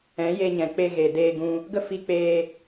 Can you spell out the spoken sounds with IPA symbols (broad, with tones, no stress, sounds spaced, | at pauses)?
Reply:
ɛ̃˨˦ j e˧ ɲ ɛ̃˨ k͡p e˧ ɣ e˨ d eː˧ ɡ ũ˧ | ɡ ə˦ f i˧ k͡p eː˧